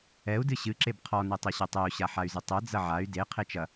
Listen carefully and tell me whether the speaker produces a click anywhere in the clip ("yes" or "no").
yes